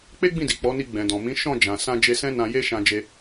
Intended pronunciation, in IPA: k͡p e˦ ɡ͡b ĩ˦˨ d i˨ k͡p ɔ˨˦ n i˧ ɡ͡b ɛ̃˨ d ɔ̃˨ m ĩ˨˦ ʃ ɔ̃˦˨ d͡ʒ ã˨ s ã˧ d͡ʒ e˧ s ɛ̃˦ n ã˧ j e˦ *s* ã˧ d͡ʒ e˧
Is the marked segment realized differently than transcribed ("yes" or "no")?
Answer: yes